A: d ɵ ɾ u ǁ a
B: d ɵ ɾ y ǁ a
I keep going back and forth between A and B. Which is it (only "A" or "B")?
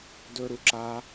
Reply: A